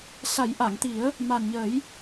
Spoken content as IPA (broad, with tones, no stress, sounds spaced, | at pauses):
s a˨˩˦ j ʔ a˨˩˨ ŋ t̪ i˨˩˦ ə̯ | m a˨˩ n ɲ əː˨˩˦ j